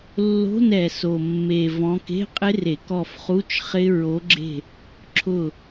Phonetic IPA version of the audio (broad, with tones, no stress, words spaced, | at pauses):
lːo̤˧˥˧nɛ˨˩so˨˩mːe˨˩ vɔ̃˨˦ke̤˧˥˧qʼɪ˦˥ re˧˩˧kɔ˦˨fχu˧˥˧t͡ʃ χɪ˦˥ ɹo˨˦ɡ͡ǁe̤˦˨ | ǁʰʊ˦˨